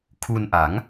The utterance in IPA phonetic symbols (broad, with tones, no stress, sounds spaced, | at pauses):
kʰ u˧ n ʔ a˩˦ ŋ